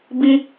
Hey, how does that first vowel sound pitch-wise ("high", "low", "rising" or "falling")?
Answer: high